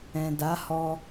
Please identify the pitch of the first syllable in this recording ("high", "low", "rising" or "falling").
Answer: low